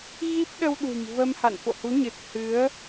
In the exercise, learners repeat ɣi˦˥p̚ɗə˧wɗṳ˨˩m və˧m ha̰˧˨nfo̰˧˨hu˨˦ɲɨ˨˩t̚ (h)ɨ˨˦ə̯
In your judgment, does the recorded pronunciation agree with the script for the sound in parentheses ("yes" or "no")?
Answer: yes